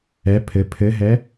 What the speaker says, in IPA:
ɛ pʰ ɘ pʰ ɘ ɦ ɛ

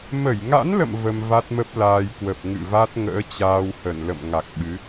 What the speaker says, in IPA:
m ə˧˩ j ŋ a̰˧˥ n l ə̰˧˨ m v ə˧ m v a˦˥ t̚ m ə˦˥ p̚ l aː˧ j k w ə˨˩ p̚ ŋ ɨ̰˧˨ v a˦˥ t̚ ŋ ə̰ː˧˥ t͡ɕ aː˧ w h ə˧˩ n l ə̰˧˨ m ŋ a˨˩ k̚ ɓ ɨ˨˦

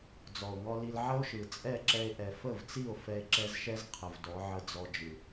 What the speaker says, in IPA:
d͡z ɔ˨ o̯ ŋ ɔ˧ l i˧ l ʕ ə˦ o̯ ʃ ɯ˨ t͡sʼ ɛ˦˨ ǁ ɛ˧ e̯ ʔ ɛ˨ f ə˦˨ v t͡s i˦˨ o̯ f ɛ˧ e̯ ǁ ɛ˧ z ʃ ɛ˦ z qʰ ə˨ v d ɔ˨˦ ʕ ə˧ d͡z ɔ˧ d͡ʒ ɯ˨

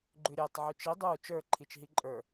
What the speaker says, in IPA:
ɡ͡ǃ ʉ ɾʲ e tˤ ʕ ʉ t͡ʃ i dˤ u t͡ʃ ə˞ ǃʰ i t͡ʃ ɦ i ǃʼ ə˞

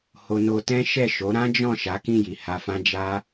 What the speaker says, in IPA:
h o˧ n o˧ t ɛ̃˦ ʃ ɛ˦˨ ʃ o˨˦ ɾ ã˦ d͡ʒ ɔ̃˦˨ ʃ a˨˦ k ĩ˦˨ j i˨ h a˧ f ã˦ d͡ʒ a˦

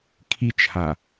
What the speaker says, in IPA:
kʰ i t͡ʃ h a

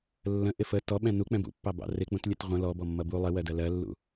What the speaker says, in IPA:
lː ə̃ ʔ ɪ f ə t ɔ ɓ ɛ̃ n u k͡p ɛ̃ b ṵ pː ɑ b ɑ̰ r ɪ k͡p ũ t lʲ ə t ʁʷ ə̃ l ɔ b ɔ mː ʌ b u lˠ ɪ w ɜ d ɜ l ɜ lː ṵ

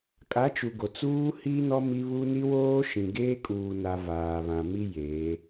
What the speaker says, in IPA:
kʼ a˨˦ t͡ʃ u˨ ɡ o˨ t͡s uː˦ h i˦ n ɔ˦ m i˦ β u˦ n i˦ w oː˦ ʃ ĩ˨ ɡ eː˦ kʼ uː˨ n a˨ v aː˨ β ã˨ m i˦ j e˨˦

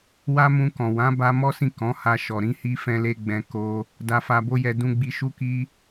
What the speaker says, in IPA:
w a˦ m ũ˧ k ɔ̃˨ w ã˨˦ b a˧ m ɔ˦ s ĩ˦˨ k ɔ̃˨˦ h a˧ ʃ ɔ˨ ɾ ĩ˧ h i˧ f ɛ̃˦ l e˦ ɡ͡b ɛ̃˧ k o˧ | d a˧ f a˧ b o˦ j ɛ˧ d ũ˧ ɡ͡b i˧ ʃ u˧ k i˧

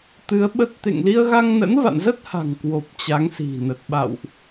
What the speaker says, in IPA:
t̪ ɨ˨˦ ə̯ ɓ ə˦˥ t̚ t̪ ḛ˧˨ ŋ l i˧ ə̯ ɣ a˧ ŋ n ə̰˧˥ n v a̰˧˨ n z ə˦˥ t̚ h a̤˨˩ ŋ k w o˨˩ p̚ t͡ɕ a˨˦ ŋ s i̤˨˩ n ə˨˩ t̚ ɓ a̰˧˨ w ʔ

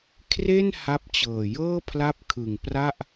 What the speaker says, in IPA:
kʰ r e˥˩ n h a˦˥ p̚ t͡ɕ ɤː˨˩ j ɤː˥˩ pʰ l a˥˩ p̚ kʰ ɯ˨˩ ŋ p r a˥˩ ʔ

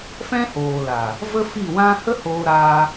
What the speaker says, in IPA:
f ɛ̃˦ h oː˨ l a˨ | v ə˦ f i˦˨ w ã˦ h ə˦ h oː˧ ɾ aː˧

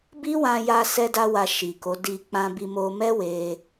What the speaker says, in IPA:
b i˦ w ã˧ j a˧ s ɛ˦ d a˦ w a˧ ʃ i˨ k o˨˦ d i˧ k͡p ã˧ b i˧ m o˧ m ɛ˦ w e˧

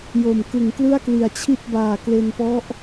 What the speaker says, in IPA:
j o˨˩ m k ɯ˨˩ ŋ k l ɯ˥˩ a̯ k l i˨˩ a̯ t͡ɕʰ i˥˩ t̚ b aː˨˩ k l e˧ n p ɔ˦˥ ʔ

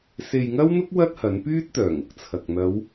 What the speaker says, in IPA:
s e˨ j ŋ ɐ˥ w n̪ ʊ˥ k̚ w ɐ˥ t̚ h ɐ˨˥ n p yː˥ t̚ t̪ œː˨˩ ŋ ʊ˨ k̚ t͡sʰ ɐ˨ k̚ n̪ ɐ˨˧ w

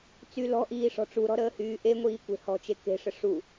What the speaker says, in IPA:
t͡s y l ɔ̤ ʔ iː ʂ ɔ̤ ʈ͡ʂ u ɾ ɔ̤ ɾ əː h yː ʔ e ŋʷ iː kʷ e̤ h ɔ̤ t͡ʃ e k e̤ ʂ ə ʂ u

